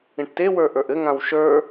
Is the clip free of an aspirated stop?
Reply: yes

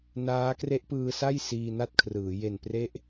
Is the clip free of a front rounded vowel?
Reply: yes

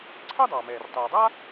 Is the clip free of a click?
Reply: no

